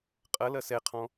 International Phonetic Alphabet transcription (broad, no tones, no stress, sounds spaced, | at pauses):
qʼ ɐ l ɐ s ɛ qʰ ɔ̃